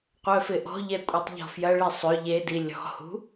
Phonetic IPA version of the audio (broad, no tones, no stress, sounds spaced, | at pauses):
qʷ œ f ɪ ʔ ɔ̤ ʎ ɛ kʷʼ e tˤ ʎ ɔ̤ f j ɐ ɭ i sˤ ʏ ʎ e d i lʲ ɔ̤ h ṳ